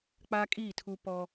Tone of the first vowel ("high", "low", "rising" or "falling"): high